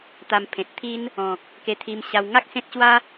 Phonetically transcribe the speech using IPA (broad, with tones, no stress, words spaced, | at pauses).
t̪a˧mpʰẽ˨t̚t̪ʰi˦n | ɔ̃˨k̚ | ke˧t̪ʰi˧mɕa˧w ŋa˦k̚ sẽ˦t̚ɕwa˦